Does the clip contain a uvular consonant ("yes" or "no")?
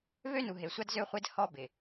yes